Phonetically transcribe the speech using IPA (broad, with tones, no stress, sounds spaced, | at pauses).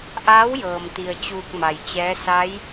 ʔ aː˧˥ w j ɤː˩ m t̪ i˩ ə̯ t͡ɕ uː˧ k̚ m a˩ j t͡ɕ ɛː˧˥ s a˧˥ j